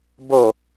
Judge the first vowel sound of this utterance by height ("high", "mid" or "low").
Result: mid